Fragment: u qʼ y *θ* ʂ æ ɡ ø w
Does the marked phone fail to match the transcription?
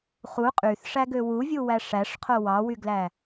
no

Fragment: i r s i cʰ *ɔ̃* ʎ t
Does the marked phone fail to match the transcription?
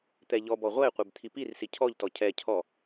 yes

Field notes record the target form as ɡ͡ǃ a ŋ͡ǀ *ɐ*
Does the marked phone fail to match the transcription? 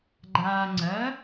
no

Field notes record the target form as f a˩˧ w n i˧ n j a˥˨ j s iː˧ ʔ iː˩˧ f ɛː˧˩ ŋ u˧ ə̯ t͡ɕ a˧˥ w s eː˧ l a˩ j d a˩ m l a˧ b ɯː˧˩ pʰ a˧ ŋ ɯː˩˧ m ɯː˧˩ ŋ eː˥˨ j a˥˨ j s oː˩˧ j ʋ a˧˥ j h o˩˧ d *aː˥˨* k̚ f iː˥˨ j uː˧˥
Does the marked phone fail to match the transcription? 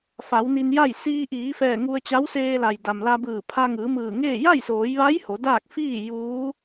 no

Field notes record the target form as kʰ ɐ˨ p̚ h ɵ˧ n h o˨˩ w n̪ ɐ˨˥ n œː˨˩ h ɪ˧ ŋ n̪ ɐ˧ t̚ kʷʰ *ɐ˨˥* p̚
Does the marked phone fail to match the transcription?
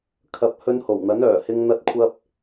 yes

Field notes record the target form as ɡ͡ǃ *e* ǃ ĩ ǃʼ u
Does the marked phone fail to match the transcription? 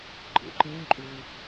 yes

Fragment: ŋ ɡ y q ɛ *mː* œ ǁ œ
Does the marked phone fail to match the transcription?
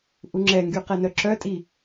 yes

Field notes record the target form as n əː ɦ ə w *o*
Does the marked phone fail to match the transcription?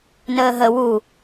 yes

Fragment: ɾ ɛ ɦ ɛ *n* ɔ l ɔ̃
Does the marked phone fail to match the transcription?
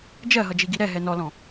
no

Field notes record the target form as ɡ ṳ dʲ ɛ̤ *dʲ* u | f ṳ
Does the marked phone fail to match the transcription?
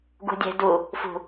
yes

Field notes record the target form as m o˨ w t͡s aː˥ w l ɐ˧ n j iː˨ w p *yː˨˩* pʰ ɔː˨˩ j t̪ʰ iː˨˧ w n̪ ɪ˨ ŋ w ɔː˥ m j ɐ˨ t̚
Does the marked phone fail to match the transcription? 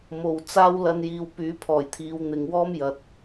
yes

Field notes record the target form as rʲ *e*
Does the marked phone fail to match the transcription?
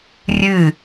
yes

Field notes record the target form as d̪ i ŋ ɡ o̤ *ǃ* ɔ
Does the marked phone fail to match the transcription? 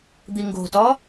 yes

